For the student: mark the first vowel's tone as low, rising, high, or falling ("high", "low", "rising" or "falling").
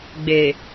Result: low